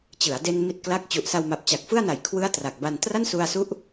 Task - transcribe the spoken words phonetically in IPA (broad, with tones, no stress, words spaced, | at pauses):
t͡ɕɯ˩˦a̯de˧n mi˥˩t̚kla˥˩k̚ t͡ɕu˨˩ʔsa˧wma˨˩p̚ t͡ɕa˨˩k̚fɯ˥˩a̯na˨˩jkʰwɯ˦˥a̯ tra˨˩k̚ba˧n tra˥˩nsu˧a̯su˦˥ʔ